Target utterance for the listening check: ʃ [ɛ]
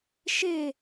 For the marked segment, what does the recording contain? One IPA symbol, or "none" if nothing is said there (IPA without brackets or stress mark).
e